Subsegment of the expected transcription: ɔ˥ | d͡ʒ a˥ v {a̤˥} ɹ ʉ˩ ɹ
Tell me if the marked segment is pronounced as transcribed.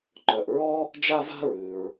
yes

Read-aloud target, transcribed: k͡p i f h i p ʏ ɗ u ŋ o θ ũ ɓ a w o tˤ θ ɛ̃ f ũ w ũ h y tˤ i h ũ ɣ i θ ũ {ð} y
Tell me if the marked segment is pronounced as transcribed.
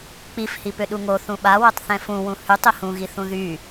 yes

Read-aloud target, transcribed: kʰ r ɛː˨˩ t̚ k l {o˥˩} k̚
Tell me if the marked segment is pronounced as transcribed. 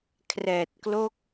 no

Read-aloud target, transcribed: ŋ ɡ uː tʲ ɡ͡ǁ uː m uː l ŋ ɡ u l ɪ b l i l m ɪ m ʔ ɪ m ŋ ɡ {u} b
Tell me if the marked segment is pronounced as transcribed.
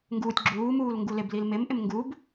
yes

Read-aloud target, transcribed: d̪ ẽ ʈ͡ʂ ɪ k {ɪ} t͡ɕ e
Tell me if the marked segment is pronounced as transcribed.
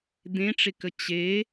no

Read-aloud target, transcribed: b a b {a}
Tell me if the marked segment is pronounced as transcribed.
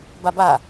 yes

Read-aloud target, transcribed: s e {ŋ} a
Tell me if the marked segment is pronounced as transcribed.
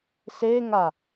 yes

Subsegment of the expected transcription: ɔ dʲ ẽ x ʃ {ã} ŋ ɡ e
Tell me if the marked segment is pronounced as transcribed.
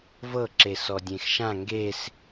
yes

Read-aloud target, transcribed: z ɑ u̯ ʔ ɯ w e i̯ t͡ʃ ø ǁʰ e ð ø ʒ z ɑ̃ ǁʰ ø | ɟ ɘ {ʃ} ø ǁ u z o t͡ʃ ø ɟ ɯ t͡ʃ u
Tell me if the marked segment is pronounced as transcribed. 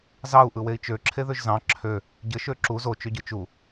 yes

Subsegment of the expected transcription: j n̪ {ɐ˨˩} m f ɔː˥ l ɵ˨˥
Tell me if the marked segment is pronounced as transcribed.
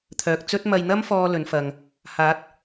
no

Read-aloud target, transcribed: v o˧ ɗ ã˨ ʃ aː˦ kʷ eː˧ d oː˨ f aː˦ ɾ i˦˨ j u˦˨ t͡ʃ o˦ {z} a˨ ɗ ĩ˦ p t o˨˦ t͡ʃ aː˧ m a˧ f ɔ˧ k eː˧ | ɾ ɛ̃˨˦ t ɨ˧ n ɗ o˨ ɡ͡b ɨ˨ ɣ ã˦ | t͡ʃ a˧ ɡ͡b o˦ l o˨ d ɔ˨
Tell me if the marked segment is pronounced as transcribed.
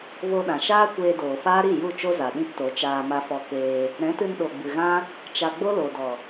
yes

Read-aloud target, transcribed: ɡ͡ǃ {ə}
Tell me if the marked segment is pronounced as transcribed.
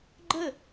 yes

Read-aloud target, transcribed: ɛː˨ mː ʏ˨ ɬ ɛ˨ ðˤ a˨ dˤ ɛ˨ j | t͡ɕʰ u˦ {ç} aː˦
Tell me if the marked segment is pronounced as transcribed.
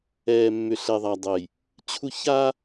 yes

